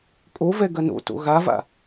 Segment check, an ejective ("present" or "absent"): present